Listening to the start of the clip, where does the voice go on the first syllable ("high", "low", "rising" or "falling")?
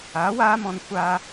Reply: rising